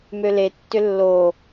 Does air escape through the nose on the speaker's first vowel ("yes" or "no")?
no